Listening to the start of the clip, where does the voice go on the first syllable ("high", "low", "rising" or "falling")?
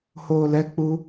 low